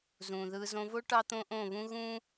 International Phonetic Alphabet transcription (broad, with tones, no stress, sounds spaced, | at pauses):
z ũː˨ ð ɯː˧ z õ˧ v o˦ ʈ ɑ˦ t̪ õ˦ ʔ õ˦˨ β ũ˦ ɣ ũ˦